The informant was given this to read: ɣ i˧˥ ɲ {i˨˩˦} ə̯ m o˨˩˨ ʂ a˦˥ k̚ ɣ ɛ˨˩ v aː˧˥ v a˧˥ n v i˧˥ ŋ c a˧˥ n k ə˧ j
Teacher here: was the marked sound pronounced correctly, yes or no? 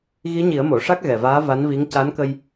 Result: yes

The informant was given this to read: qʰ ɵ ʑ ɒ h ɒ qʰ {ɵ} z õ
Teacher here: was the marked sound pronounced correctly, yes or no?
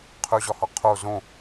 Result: no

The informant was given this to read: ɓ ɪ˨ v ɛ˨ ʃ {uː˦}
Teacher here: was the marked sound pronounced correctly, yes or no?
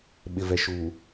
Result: no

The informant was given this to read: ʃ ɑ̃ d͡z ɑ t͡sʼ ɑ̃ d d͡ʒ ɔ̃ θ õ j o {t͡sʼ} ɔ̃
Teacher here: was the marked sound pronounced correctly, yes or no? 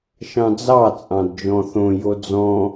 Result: no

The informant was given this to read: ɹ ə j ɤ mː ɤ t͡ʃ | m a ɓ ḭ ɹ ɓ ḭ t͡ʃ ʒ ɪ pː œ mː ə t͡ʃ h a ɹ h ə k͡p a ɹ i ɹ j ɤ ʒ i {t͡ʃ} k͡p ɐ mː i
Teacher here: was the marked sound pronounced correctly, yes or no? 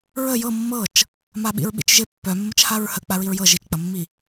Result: yes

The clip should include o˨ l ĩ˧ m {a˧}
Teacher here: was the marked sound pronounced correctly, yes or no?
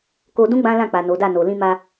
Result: yes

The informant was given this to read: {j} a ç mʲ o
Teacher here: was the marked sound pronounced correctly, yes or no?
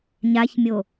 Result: no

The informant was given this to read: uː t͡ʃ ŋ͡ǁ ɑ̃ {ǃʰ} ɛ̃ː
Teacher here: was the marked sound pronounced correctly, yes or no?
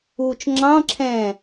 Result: no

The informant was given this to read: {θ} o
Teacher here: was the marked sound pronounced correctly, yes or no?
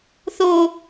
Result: yes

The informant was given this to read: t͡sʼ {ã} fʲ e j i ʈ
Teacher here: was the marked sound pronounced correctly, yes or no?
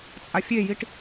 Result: no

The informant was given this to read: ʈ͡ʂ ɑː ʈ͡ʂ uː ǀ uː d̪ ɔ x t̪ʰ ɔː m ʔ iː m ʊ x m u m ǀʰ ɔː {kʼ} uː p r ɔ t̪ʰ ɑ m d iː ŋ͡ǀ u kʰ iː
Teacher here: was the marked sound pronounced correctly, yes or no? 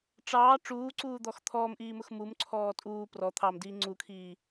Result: no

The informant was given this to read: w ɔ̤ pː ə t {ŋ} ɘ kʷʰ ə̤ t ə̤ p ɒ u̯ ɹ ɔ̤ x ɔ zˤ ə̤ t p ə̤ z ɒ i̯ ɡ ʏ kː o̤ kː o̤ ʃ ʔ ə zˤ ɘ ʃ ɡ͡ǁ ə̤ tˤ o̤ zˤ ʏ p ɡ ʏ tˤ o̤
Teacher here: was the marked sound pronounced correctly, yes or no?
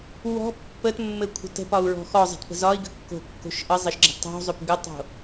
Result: no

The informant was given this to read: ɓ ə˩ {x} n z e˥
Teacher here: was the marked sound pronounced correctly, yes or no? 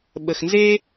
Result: yes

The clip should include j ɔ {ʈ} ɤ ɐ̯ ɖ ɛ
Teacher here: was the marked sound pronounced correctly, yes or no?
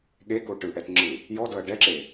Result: no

